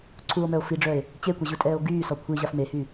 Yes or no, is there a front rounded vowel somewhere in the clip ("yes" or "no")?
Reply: yes